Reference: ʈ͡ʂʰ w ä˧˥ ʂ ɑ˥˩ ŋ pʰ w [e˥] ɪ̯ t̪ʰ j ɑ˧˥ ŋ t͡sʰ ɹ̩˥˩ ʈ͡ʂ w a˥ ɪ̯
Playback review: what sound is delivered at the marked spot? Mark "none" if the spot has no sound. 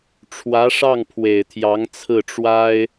e˨˩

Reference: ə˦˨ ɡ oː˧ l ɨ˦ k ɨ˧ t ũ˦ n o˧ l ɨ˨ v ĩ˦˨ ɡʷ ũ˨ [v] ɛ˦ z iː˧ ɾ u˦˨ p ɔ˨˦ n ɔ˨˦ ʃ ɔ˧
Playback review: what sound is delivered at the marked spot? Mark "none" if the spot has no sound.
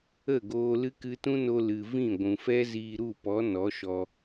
f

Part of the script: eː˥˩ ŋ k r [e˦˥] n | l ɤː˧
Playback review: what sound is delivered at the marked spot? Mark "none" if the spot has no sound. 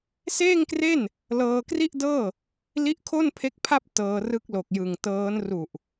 e˥˩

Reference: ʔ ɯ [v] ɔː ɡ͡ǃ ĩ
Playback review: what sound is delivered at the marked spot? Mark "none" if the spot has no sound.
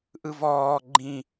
v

